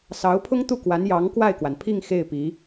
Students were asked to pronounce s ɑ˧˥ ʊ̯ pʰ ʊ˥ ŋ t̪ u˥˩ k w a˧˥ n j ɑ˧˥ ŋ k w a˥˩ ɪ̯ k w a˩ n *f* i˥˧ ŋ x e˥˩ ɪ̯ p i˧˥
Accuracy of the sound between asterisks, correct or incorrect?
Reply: incorrect